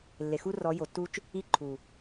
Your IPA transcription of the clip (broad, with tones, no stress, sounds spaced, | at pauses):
lː e˨ x u˦ r ɔ˨˦ j o˨ tː u˦ t͡ʃ | i˦ ǃʰ u˨